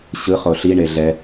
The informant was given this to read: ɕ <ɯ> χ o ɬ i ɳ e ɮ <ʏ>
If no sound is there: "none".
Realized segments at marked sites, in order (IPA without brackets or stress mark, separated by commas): ɯ, ɛ